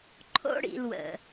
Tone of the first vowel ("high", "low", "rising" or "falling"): high